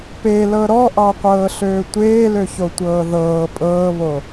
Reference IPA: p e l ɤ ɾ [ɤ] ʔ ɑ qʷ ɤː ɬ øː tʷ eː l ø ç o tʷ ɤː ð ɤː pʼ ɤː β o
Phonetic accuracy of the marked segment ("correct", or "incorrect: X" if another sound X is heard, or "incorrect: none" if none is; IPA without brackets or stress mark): incorrect: ɔ